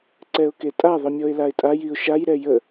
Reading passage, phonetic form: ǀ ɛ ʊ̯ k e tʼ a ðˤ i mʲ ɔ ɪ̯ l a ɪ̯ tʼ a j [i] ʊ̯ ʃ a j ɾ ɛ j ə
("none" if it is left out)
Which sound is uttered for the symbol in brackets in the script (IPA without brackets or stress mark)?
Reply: i